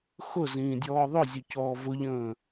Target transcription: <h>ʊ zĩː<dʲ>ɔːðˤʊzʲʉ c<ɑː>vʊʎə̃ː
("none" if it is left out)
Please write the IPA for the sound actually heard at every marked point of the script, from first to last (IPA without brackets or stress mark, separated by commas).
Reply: x, dʲ, ɔː